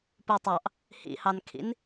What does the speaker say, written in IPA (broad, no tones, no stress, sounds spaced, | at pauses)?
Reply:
p u tˤ ɑ ʔ | h ḭ h ɑ n kʰ ḭ n